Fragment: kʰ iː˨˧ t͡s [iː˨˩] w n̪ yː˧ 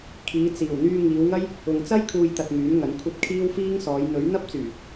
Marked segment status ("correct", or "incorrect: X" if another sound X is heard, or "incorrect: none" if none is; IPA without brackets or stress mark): correct